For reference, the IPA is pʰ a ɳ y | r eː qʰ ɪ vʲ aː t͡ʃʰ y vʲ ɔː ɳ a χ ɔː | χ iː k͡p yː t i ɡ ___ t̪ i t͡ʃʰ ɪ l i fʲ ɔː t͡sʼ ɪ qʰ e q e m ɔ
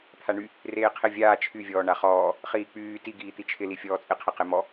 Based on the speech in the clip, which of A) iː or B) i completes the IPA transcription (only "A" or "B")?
A